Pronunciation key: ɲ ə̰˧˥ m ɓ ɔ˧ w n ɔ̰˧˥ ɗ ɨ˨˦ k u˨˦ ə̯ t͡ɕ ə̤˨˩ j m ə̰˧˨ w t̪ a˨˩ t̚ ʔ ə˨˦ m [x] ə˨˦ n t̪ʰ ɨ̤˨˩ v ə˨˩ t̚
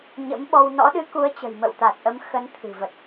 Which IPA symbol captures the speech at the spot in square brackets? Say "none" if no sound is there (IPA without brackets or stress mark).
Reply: x